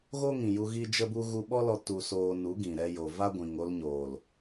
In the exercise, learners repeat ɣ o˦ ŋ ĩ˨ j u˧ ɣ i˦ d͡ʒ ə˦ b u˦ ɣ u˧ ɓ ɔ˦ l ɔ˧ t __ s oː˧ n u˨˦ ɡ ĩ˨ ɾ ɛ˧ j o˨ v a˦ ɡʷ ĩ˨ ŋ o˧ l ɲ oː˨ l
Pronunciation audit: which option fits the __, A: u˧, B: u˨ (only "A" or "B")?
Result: A